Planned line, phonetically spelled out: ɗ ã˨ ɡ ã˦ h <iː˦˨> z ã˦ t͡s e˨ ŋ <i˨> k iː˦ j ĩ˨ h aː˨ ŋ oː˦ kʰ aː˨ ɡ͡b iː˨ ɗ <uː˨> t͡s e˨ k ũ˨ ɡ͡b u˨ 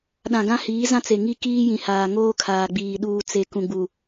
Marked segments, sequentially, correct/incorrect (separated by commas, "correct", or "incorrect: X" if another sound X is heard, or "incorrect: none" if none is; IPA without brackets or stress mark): incorrect: iː˨˦, incorrect: i˦, correct